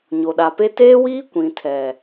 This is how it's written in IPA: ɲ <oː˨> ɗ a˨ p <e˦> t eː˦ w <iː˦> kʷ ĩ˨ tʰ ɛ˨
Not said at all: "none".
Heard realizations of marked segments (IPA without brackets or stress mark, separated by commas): o˨, e˦, iː˦